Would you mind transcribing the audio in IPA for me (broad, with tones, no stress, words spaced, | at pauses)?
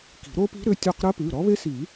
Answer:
ki̤˨˩˦ɾo˦˥pi̤˦˥ ɾʏ˩˧˩tʲɔ˦˨q ɾə˦˥pʉ˩˧˩ ɾɔ˦˥βe˦˥si˨˩˦